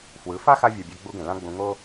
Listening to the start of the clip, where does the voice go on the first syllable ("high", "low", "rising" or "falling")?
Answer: rising